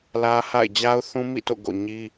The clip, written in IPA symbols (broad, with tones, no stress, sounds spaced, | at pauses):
l ä˦ h a̰˦˨ ɪ̯ d͡ʑ a˦ ʊ̯ θ ũ˦ m ḭ˦˨ t o̰˦˨ ɡ o̰˦˨ ɲ i˦